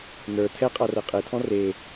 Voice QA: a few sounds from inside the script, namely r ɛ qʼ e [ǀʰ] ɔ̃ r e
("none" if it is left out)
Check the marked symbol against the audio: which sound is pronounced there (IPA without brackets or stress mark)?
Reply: tʰ